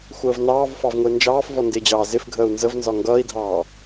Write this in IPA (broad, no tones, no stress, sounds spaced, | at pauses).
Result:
xʷ əː v n ɑː v f ɑ v ŋʷ ɪː n d͡ʒ ɑː f v ɔ n d ɪː d͡ʑ ɑː z ɪ f ɡʱ əː u̯ n z ə v n z ɒ ŋ ɡ ʌː i̯ dʱ ɑː